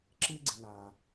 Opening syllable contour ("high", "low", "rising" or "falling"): high